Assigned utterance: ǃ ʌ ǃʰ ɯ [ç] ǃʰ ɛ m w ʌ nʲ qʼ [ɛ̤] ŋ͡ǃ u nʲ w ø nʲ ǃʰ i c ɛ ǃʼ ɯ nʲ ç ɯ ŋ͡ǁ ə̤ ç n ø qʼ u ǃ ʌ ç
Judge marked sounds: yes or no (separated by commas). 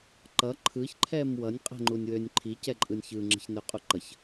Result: yes, yes